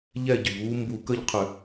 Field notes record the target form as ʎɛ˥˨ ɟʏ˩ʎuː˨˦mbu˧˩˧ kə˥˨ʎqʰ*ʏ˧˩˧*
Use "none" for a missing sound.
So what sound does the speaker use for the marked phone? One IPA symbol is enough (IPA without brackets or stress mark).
ʏ˧˩˧